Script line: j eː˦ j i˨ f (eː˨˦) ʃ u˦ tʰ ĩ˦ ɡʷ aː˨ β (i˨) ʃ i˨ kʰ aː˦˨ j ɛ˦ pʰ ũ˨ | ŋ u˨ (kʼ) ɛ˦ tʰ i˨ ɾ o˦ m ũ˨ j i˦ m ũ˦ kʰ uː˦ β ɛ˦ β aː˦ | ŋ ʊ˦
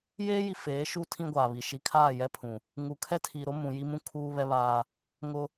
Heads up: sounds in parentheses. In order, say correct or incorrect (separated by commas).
correct, correct, incorrect